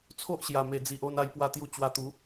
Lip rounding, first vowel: rounded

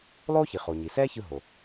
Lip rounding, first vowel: rounded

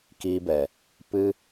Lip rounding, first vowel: unrounded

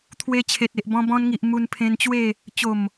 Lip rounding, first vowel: unrounded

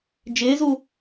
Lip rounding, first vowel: unrounded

